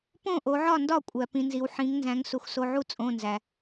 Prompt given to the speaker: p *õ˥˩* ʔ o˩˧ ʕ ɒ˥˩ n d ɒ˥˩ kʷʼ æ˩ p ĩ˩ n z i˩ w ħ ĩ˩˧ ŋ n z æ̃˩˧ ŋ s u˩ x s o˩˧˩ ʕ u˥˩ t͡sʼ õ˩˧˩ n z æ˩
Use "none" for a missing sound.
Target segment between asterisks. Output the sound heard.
õ˥˩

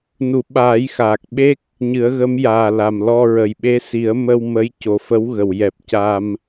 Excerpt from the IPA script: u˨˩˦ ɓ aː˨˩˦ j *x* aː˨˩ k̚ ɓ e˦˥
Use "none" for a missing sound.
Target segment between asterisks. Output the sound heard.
x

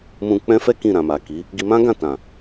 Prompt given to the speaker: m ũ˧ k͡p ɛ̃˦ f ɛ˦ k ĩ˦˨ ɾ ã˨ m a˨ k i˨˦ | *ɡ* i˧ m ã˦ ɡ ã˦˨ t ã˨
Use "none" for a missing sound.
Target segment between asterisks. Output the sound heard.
ɡ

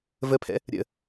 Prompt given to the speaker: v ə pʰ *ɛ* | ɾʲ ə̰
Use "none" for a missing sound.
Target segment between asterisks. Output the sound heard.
ɛ̰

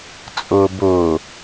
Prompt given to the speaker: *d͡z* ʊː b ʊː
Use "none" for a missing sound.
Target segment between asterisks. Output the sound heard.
t͡sʼ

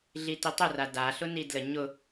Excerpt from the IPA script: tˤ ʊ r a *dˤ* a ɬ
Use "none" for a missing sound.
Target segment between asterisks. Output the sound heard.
d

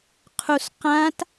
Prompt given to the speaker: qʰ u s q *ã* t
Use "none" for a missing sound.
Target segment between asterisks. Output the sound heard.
ã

